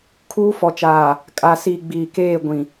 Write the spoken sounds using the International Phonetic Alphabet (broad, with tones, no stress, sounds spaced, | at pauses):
kʰ uː˦ f ɔ˨ t͡ʃ aː˨ | kʼ a˨ s iː˨ ɡ͡b iː˨ k eː˦˨ ɡʷ ĩ˨